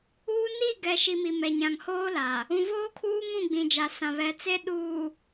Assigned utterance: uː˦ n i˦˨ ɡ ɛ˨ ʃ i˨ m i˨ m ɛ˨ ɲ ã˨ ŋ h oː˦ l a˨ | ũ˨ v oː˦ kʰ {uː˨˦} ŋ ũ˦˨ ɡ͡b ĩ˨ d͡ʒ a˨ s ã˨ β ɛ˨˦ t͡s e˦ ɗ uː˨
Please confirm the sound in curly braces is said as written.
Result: no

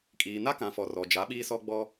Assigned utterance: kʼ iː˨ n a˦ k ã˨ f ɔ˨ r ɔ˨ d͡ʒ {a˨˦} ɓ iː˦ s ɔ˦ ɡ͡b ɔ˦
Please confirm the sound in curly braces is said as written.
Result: yes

